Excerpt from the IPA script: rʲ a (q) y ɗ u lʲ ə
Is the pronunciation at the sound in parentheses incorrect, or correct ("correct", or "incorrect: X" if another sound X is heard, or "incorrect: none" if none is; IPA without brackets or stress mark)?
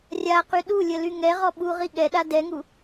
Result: correct